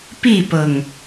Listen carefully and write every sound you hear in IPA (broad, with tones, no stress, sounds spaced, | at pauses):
p i˥˨ p ɤ˨˩ ŋ